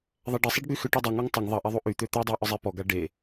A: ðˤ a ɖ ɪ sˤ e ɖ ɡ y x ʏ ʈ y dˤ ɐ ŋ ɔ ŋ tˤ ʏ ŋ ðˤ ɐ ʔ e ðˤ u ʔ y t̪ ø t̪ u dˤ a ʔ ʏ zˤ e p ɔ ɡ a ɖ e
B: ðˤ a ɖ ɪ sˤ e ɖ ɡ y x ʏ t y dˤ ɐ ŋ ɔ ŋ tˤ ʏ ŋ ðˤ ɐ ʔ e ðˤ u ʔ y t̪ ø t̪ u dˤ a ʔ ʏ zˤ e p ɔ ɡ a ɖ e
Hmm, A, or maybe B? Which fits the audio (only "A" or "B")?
A